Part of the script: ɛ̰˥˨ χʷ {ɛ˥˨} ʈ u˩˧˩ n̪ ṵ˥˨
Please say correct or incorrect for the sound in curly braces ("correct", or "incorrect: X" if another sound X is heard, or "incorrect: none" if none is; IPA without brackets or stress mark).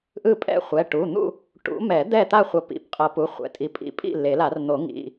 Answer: incorrect: ɛ˩˧˩